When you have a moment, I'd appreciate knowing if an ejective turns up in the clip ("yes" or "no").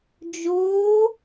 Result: no